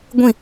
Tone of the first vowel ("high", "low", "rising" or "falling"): falling